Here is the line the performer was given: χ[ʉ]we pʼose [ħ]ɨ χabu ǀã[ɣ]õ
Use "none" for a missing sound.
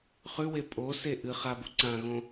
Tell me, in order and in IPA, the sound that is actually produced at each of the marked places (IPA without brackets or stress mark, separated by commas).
ʉ, ʔ, ɣ